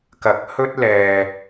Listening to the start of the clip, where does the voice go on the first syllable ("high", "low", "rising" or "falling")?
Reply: rising